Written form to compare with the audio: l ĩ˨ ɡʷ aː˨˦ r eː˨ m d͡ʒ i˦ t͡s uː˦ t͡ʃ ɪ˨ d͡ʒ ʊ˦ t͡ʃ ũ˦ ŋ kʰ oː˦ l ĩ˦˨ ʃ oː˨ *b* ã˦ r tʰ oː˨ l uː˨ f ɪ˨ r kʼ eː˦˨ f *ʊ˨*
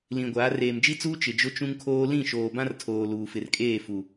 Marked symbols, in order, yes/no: yes, no

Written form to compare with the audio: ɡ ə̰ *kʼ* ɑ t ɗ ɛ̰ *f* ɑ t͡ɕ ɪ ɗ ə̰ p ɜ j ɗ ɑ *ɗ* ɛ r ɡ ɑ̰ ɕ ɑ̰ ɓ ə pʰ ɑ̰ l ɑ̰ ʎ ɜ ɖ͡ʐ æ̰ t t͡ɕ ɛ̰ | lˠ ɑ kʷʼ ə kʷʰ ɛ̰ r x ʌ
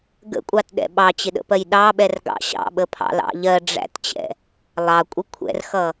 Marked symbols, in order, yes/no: no, no, no

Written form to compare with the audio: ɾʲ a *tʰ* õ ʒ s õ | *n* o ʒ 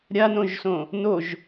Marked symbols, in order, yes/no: no, yes

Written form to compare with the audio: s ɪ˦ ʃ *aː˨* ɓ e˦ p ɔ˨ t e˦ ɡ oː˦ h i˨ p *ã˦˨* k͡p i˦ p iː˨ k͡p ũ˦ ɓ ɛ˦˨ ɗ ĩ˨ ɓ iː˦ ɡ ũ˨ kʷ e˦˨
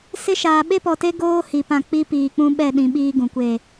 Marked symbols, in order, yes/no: yes, yes

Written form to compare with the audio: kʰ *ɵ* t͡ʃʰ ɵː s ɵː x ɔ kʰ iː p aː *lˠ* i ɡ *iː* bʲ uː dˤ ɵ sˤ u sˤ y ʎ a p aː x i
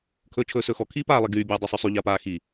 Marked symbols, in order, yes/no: no, yes, no

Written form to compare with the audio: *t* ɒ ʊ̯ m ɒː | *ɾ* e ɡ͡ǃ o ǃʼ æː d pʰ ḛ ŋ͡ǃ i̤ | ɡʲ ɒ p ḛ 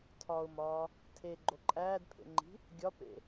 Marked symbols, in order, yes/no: no, no

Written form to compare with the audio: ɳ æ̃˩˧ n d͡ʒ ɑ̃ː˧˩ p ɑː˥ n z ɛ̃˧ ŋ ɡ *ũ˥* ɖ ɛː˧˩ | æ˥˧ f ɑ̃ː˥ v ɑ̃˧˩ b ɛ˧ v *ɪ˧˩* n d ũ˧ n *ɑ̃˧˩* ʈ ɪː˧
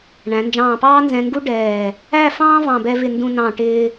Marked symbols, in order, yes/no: no, yes, yes

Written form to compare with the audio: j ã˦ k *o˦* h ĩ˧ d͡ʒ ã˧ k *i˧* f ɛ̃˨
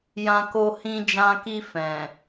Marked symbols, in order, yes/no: yes, yes

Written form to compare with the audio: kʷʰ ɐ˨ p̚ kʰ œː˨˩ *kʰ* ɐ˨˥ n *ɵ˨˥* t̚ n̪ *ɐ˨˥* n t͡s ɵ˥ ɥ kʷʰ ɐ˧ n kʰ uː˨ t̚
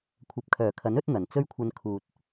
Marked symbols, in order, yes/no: yes, yes, no

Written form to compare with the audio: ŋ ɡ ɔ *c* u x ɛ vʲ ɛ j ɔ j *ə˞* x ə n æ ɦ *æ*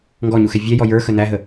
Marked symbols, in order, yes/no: no, yes, no

